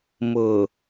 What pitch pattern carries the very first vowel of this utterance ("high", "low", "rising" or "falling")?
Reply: low